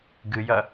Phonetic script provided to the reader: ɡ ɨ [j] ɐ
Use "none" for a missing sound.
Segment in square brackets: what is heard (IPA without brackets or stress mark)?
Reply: j